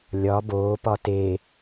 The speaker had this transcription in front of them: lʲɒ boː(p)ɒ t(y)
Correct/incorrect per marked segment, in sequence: correct, incorrect

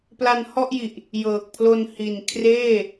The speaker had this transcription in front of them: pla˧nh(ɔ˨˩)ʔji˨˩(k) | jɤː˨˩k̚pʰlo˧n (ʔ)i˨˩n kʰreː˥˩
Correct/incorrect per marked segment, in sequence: incorrect, incorrect, incorrect

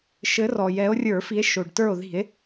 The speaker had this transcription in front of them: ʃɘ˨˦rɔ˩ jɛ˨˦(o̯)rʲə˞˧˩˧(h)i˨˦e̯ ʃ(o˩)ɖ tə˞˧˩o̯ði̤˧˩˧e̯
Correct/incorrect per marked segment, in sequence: correct, incorrect, correct

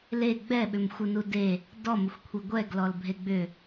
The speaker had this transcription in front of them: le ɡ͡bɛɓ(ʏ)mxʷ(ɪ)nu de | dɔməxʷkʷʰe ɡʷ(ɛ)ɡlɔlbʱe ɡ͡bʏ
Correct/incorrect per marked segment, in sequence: correct, correct, correct

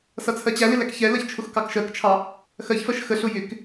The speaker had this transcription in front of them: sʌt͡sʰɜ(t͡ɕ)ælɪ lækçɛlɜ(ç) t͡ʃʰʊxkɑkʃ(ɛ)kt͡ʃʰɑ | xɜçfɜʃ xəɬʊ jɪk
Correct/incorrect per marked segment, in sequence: correct, correct, incorrect

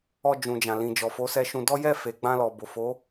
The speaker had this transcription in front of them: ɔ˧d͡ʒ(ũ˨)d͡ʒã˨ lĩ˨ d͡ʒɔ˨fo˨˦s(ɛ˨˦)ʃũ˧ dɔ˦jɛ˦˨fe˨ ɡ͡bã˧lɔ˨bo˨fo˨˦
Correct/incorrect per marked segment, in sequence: correct, incorrect

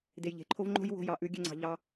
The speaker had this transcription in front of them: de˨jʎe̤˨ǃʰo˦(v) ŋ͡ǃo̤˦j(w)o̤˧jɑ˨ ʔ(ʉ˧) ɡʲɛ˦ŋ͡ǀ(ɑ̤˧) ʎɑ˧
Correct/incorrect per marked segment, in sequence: correct, correct, correct, correct

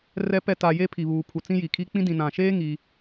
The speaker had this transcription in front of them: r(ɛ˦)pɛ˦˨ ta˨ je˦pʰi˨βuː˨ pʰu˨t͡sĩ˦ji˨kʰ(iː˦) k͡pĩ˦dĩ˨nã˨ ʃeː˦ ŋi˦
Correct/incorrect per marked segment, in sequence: correct, incorrect

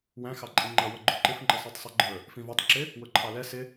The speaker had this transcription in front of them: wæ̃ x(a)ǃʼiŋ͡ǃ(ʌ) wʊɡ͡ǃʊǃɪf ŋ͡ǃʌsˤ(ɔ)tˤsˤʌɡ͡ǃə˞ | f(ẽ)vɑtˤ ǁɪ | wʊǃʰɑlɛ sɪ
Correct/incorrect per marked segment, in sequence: incorrect, correct, incorrect, incorrect

